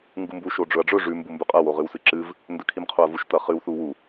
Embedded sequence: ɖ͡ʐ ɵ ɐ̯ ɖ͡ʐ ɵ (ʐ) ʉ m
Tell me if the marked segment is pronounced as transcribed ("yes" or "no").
yes